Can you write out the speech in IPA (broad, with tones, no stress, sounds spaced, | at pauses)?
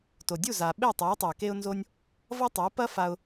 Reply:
t o˩ dʲ u˥˩ z a˩ ɓ e˥˩ tˤ a˩˥ ʊ̯ tˤ u˩ ɪ̯ k e˥ ʊ̯ n z o˥ nʲ | v ʌ˥ tˤ ə˩˥ ʊ̯ p ɐ˥ f a˧ ʊ̯